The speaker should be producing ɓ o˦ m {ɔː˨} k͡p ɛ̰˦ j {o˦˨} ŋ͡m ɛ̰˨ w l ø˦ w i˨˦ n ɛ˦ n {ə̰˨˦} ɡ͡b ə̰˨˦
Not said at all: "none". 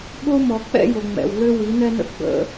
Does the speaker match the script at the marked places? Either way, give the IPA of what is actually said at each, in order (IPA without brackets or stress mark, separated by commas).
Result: ɔ˨, o˨, ə̰˦